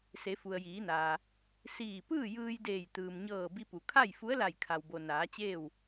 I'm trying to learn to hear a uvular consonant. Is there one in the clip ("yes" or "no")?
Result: no